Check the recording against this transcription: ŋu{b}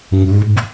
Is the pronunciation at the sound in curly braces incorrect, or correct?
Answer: correct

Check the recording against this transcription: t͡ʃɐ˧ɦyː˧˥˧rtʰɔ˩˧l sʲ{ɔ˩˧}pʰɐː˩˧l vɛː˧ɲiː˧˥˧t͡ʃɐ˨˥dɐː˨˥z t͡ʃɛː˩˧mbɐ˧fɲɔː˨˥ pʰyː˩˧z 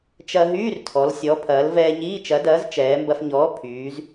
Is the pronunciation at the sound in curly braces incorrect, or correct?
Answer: correct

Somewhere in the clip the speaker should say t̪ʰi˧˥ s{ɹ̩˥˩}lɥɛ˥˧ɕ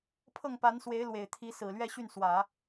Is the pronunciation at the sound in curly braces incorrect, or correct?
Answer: incorrect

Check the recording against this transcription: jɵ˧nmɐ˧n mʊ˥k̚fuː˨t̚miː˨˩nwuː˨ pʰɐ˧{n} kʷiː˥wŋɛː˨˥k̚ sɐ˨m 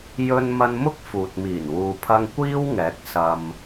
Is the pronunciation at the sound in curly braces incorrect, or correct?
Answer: incorrect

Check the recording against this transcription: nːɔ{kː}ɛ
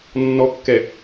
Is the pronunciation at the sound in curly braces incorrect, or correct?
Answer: correct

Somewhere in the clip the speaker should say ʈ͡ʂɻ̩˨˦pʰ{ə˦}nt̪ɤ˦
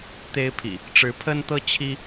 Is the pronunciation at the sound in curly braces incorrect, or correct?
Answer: correct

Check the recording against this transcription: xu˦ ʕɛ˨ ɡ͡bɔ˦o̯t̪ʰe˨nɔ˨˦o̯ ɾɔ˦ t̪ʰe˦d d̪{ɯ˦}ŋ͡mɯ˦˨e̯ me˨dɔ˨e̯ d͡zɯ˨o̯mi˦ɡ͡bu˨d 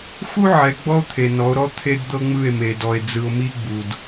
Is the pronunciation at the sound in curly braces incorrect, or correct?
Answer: incorrect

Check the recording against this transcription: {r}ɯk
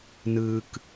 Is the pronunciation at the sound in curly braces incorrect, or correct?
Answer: incorrect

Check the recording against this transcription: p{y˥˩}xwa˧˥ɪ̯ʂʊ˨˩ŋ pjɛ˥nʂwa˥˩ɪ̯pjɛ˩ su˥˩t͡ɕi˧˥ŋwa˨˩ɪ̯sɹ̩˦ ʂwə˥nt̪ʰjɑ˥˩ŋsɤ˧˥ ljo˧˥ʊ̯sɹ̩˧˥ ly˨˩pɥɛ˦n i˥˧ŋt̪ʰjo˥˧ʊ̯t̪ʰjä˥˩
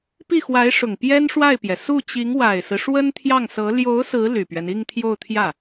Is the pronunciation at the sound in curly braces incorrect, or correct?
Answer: incorrect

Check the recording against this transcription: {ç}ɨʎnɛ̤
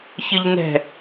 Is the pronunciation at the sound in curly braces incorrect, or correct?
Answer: correct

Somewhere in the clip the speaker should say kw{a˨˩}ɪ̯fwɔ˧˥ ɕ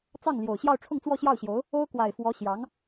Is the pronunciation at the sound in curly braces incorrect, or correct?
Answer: correct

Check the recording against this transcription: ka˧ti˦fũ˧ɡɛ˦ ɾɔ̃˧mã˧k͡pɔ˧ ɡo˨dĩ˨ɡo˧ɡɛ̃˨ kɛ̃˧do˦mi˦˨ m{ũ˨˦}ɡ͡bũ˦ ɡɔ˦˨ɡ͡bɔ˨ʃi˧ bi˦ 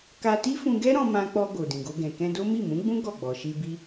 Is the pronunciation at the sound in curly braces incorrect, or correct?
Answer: correct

